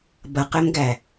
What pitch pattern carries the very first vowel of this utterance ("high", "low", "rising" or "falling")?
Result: low